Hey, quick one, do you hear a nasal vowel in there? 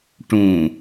yes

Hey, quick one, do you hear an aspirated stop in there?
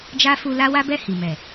no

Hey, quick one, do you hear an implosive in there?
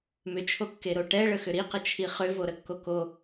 no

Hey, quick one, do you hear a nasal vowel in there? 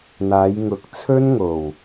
no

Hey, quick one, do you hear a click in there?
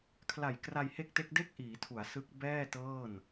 no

